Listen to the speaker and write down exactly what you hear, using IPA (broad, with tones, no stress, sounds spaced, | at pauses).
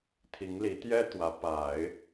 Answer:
t̪ʰ i˧˥ ŋ l i˧˥ t̪ j ɛ˥ t̪ w ä˧˥ p a˨˩˦ ɪ̯